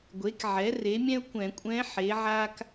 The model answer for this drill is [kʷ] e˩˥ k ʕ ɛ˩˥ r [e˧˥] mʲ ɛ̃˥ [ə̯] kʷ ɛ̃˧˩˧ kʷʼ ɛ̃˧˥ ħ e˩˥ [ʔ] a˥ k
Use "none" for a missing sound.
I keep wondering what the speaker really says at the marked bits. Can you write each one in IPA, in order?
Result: ɡʷ, e˩˥, ʊ̯, ʕ

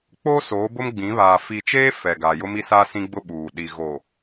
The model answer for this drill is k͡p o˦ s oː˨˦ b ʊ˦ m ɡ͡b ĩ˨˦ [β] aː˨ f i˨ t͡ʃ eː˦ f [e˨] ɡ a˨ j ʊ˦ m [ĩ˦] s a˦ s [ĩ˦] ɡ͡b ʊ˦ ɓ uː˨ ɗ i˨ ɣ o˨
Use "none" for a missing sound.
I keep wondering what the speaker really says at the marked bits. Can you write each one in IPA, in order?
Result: β, ɛ˨, i˦, ĩ˦

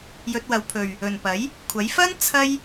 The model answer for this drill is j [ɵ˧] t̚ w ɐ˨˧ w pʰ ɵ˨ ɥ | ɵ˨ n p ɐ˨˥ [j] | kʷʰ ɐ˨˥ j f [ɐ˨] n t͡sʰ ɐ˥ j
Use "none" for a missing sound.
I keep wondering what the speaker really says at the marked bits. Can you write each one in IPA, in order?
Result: ɵ˧, j, ɐ˥

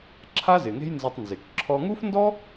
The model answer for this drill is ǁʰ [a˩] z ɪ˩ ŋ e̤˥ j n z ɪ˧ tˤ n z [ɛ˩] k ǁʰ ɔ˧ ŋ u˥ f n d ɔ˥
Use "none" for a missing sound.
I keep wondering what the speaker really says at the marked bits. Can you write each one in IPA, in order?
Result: a˥, ɪ˩

